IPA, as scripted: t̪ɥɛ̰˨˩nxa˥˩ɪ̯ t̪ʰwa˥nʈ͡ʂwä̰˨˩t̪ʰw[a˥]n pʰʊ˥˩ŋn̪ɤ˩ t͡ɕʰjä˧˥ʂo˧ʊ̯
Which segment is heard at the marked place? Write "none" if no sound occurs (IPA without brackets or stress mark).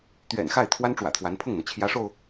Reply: a˧˥